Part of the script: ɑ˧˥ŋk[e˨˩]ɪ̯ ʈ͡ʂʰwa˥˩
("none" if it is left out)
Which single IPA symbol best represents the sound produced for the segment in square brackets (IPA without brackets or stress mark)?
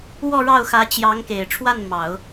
e˨˩